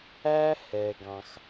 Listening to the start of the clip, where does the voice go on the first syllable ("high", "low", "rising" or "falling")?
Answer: high